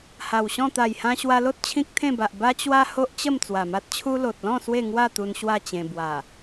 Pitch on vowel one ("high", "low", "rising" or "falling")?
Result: low